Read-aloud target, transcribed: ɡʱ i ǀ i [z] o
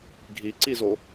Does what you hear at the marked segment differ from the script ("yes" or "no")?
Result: no